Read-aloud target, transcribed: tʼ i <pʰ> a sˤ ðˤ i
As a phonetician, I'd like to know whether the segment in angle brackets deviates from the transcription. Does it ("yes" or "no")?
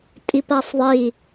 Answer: yes